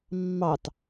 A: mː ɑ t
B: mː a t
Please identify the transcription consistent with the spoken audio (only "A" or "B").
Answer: A